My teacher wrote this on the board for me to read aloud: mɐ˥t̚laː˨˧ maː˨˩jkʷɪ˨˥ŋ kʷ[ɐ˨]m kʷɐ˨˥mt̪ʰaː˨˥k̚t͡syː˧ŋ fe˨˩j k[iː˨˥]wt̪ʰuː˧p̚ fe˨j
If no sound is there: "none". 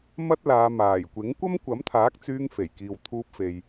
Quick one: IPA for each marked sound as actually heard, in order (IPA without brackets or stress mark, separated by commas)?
ɐ˥, iː˨